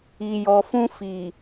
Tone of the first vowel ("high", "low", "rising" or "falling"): low